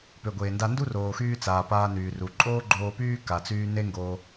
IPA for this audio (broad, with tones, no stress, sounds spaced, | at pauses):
p ø˩ ɡʷ eː˩ n d a˧ n d u˥ r oː˩ x yː˧ t͡s aː˩ p aː˧ n yː˩ r u˩ ǃʼ oː˥ ɡ͡ǃ oː˧ p yː˥ k a˩ t͡s yː˧ n e˥ ŋ ɡ oː˧